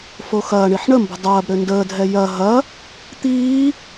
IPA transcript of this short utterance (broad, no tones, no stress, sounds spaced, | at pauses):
f o x ɐː ɳ i ħ ɳ ə m b ə̤ dˤ ɐː b ɾ ø n d əː dʱ ɛ j ɐ ɦ ɐ | t̪ iː